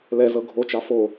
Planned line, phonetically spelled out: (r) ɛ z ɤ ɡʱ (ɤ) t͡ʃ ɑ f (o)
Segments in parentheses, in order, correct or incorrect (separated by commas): incorrect, incorrect, correct